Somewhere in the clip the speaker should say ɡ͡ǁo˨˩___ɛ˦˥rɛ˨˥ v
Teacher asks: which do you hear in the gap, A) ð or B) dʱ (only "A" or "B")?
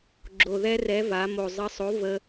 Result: A